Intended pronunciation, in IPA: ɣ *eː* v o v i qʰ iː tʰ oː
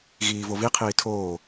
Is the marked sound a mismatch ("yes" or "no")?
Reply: yes